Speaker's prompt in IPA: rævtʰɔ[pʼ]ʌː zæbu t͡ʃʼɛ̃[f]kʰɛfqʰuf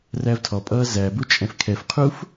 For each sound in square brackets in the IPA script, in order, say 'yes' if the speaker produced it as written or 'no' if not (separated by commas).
yes, yes